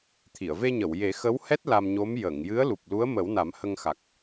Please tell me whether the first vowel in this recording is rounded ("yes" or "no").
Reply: no